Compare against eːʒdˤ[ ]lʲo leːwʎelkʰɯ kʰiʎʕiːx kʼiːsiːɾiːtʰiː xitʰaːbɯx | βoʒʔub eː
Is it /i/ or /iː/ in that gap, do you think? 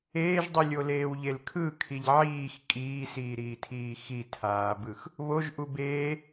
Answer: i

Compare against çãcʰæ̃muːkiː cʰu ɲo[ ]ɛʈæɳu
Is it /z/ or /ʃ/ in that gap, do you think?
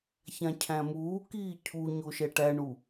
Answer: ʃ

